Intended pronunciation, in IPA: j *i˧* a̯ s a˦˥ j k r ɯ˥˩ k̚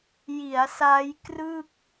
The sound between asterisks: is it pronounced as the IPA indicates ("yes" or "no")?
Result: no